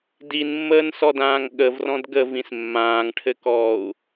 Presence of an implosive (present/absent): present